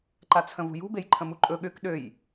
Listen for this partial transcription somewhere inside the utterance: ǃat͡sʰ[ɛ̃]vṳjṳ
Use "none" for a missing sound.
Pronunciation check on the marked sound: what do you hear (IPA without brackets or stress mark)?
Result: ə̃